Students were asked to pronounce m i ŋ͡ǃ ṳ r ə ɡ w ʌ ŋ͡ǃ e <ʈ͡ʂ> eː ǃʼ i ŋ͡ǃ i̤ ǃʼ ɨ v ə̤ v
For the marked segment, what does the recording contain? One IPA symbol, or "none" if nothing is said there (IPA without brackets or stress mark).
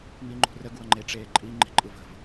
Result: ʈ͡ʂ